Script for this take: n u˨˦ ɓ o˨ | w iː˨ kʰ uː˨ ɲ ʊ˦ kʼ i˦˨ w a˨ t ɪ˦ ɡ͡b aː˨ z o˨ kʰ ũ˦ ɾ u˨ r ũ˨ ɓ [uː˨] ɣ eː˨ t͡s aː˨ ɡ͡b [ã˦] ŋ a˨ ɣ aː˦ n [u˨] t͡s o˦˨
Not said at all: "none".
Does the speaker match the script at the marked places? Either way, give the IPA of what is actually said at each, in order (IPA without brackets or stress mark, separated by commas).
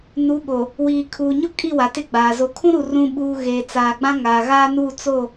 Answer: uː˨, ã˦, u˦˨